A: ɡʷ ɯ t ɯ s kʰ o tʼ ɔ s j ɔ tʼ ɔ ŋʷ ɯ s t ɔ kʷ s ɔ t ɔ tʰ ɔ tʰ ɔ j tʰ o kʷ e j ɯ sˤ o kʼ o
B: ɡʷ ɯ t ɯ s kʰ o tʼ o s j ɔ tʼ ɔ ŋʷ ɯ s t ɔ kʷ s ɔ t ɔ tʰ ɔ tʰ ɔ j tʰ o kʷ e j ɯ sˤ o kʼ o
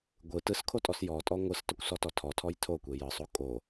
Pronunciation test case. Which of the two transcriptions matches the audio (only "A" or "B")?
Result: A